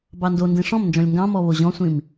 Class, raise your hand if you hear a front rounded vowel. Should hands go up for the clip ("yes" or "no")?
no